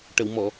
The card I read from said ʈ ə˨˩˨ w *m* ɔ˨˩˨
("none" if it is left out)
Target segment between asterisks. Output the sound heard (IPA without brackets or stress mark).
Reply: m